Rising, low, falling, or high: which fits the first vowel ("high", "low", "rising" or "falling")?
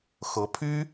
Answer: rising